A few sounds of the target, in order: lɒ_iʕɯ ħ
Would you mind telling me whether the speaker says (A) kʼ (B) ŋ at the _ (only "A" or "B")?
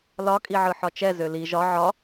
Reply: A